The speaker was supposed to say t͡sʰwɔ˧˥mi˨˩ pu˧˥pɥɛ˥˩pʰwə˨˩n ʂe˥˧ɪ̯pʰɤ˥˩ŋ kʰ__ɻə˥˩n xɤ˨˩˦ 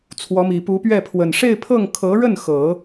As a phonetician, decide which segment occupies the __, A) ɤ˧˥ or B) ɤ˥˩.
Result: A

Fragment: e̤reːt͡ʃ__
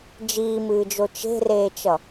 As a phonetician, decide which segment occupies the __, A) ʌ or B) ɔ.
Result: A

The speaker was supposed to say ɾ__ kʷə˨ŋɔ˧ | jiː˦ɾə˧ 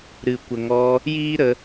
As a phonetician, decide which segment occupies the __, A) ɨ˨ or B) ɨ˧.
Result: A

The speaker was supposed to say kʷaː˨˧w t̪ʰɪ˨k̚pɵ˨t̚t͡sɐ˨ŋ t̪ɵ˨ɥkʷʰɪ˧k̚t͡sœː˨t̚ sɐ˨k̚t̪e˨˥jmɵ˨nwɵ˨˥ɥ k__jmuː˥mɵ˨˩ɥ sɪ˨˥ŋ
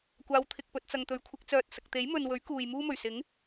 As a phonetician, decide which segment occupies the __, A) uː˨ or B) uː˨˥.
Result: A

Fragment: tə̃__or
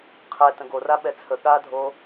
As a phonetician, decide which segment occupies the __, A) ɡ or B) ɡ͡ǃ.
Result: A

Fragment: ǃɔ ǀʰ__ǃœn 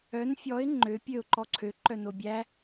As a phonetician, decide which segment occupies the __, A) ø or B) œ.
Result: A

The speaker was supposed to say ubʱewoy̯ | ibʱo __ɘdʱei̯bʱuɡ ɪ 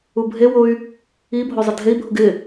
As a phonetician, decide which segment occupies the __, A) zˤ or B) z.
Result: A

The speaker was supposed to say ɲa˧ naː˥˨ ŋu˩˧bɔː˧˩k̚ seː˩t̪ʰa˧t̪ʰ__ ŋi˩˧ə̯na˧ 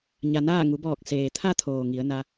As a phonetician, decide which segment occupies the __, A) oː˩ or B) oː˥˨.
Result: A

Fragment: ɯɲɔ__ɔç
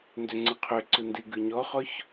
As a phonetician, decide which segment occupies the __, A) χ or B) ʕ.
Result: A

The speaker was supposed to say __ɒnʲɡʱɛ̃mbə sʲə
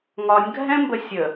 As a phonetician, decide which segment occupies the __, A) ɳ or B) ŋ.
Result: B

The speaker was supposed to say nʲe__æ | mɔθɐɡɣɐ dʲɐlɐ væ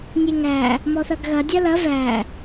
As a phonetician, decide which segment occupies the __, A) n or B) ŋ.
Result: B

